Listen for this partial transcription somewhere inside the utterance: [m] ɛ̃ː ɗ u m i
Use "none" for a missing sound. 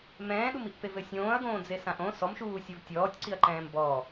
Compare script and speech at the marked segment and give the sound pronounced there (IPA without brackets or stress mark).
m